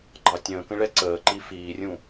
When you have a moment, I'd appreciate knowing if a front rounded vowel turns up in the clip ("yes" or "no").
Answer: no